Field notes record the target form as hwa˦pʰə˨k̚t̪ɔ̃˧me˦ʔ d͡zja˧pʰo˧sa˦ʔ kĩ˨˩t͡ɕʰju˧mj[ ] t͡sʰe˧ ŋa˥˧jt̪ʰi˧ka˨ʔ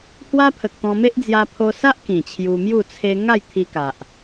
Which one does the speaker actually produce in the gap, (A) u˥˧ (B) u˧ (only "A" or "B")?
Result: A